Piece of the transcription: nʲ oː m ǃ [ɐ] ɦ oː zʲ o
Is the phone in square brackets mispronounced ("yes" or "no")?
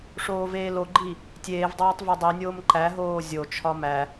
yes